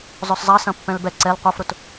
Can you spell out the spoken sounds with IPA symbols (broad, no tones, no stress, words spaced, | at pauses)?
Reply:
zˤœszˤɐ sɐ̃pːɛ̃lbɛ ǀɛl qʷœfɾʊt